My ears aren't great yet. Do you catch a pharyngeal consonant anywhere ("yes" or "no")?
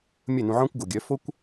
yes